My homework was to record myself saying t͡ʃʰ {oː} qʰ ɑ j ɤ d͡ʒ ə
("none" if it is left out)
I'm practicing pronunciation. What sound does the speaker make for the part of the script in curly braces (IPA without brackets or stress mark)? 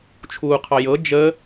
uː